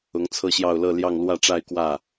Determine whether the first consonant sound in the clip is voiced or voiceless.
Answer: voiced